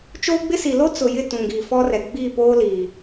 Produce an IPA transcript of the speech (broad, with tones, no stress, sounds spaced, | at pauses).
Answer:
t͡ʃ oː˦ ɡ͡b ɪ˦ s i˨ l o˦ t͡s ʊ˨ j ɪ˦˨ t ũ˨ ɡ iː˨ f ɔ˦ r ɛ˨ ɡ͡b iː˦˨ p oː˦ l iː˨